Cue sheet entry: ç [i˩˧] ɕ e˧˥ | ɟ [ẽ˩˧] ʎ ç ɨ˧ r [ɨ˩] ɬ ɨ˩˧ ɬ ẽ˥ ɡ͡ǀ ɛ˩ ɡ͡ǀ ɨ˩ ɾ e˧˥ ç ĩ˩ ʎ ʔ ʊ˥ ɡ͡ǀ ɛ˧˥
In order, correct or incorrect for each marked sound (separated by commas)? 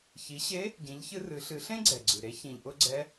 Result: correct, incorrect, incorrect